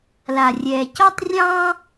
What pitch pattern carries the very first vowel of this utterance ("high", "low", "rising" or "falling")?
low